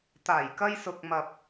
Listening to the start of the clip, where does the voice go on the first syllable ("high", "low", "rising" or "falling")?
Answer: low